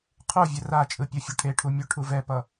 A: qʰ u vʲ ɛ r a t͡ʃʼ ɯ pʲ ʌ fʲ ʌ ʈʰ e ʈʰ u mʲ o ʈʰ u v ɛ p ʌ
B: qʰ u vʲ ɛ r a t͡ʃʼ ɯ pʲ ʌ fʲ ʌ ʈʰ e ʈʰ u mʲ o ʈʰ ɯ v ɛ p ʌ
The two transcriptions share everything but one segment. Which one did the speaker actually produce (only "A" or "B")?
A